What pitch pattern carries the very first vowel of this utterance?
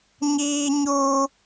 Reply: high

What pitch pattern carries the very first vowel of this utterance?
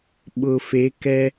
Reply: low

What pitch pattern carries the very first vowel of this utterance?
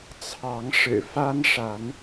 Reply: rising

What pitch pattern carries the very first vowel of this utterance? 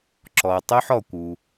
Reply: low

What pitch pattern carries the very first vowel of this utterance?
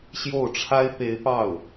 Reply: falling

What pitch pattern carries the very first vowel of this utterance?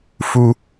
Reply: high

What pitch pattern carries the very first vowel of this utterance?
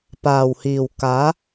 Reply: low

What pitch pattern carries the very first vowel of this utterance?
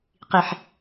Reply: low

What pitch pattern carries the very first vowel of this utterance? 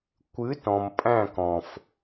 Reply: rising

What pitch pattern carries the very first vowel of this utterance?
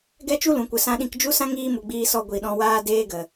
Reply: high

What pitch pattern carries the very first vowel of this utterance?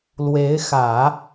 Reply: rising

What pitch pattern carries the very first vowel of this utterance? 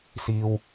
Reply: low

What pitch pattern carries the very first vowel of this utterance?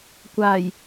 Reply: low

